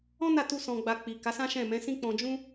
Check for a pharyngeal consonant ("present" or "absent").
absent